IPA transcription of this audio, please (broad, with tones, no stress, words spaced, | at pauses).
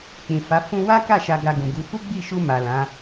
k͡pĩ˨fa˨˦ fũ˧wa˦ka˦˨ ʃa˧ɡa˧ɡũ˨ɡu˨˦ fu˦ɡ͡bi˦˨ʃu˧ ma˨lã˨˦